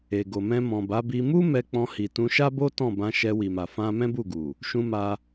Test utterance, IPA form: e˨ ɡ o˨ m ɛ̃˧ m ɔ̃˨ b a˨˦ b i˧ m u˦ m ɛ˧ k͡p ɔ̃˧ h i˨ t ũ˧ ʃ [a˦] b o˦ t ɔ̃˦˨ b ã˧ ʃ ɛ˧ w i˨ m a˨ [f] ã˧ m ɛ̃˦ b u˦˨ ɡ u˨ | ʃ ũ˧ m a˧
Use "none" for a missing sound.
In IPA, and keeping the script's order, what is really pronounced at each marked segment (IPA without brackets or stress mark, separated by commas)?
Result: a˦, f